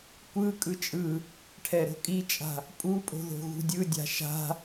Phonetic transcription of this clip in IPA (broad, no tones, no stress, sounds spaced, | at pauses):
kʷ ɯ kʼ ɯ t͡ʃʼ ɯ | ʈʰ ɛ ɾ o̤ kʼ i t͡ʃʼ a̤ | pʼ u pʼ o̤ ð o̤ ɣ ṳ dʲ ɯ dʲ a̤ ʃ a̤